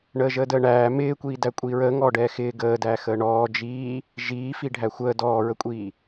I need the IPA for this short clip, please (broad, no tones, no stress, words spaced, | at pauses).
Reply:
ɳəːʒəːdəːɳæː mɪːkʷiːdæ kʷʼiːɹəːŋɔːɖɛː xɪː ɡəː dæːxəːɳɔː d͡ʒiː | ʒiː fiɖʱæxʷəː dɔːɹəkʷʼiː